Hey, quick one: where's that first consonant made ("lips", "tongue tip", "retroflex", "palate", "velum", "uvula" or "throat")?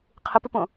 uvula